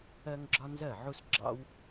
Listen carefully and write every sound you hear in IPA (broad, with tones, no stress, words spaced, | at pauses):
ɜ˥ŋɡ͡ǁɒ˥ nzɜ˥˩ ʕu˥s ɡ͡ǁɑ̰˥w